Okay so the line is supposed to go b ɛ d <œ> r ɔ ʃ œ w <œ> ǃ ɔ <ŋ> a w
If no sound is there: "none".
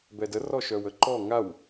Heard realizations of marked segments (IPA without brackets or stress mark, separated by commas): ə, ə, ŋ